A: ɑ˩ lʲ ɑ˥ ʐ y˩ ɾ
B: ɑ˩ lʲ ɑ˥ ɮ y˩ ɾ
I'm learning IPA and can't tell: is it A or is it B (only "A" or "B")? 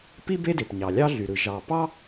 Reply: B